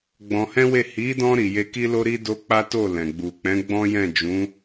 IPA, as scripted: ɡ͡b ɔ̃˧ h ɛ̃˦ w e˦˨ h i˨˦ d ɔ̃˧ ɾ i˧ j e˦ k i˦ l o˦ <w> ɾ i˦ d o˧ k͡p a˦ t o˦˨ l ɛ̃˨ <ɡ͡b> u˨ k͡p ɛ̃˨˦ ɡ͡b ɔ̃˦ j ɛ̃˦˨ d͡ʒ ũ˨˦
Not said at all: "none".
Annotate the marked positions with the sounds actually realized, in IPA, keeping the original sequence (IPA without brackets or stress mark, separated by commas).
none, ɡ͡b